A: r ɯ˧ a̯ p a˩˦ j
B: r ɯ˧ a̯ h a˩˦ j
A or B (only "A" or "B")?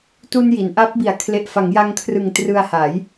B